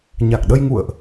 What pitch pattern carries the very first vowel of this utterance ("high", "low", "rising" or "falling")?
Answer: low